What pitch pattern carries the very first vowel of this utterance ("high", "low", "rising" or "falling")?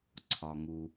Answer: low